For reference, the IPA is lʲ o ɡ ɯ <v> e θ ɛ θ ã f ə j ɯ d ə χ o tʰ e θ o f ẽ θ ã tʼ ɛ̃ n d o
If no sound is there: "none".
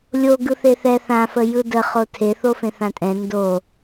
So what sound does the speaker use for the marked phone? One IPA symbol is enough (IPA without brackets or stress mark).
θ